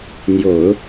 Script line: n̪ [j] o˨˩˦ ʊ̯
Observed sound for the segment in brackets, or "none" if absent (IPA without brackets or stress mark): j